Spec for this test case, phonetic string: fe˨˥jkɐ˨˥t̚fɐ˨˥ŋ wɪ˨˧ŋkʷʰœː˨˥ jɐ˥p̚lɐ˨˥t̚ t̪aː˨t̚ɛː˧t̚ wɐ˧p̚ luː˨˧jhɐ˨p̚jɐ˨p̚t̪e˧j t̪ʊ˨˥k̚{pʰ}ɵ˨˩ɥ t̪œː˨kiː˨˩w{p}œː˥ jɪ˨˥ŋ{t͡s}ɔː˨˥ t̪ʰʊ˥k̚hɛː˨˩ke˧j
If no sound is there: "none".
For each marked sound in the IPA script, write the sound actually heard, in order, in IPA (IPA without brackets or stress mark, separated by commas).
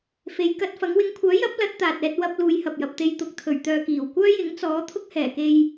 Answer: t̪ʰ, kʷ, t͡s